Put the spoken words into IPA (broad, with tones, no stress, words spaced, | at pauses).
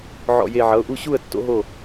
ʕɔ̰˧˩je˧˩ ʕʌ˩˧˩ʊ̯ʔu˥˩ɕu˥˩ə̯ tːo̰˦˥ɦo˥˩